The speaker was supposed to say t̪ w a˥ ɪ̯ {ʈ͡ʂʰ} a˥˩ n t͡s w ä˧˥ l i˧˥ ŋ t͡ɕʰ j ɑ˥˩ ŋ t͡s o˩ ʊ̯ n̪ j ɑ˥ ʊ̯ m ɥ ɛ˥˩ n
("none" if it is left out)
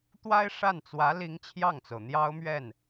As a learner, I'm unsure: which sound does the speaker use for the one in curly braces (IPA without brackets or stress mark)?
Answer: ʂ